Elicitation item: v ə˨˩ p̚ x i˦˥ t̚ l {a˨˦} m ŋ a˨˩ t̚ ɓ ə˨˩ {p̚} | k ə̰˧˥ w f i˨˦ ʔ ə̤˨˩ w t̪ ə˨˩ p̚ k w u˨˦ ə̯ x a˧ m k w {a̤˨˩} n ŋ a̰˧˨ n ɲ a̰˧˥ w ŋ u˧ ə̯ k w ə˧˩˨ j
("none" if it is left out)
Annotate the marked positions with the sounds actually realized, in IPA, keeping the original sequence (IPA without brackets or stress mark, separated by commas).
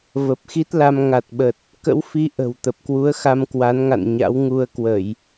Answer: a˧, t̚, a˨˦